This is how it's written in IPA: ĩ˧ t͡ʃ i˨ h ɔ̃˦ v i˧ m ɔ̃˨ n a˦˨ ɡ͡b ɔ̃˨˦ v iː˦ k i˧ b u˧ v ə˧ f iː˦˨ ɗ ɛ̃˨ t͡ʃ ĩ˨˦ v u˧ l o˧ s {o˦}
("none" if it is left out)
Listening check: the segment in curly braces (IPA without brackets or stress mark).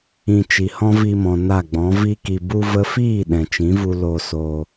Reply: o˧